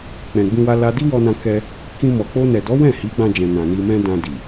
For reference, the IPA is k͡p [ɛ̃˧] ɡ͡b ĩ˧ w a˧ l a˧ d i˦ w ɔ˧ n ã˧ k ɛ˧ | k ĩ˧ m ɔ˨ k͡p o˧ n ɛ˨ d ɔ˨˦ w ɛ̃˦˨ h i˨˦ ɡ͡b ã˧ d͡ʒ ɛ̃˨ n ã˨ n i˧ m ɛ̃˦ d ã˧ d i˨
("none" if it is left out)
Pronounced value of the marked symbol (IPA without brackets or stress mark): ɛ̃˨